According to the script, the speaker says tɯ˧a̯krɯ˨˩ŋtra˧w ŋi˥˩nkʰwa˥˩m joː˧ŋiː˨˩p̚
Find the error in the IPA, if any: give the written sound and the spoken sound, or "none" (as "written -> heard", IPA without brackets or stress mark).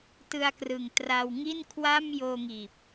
none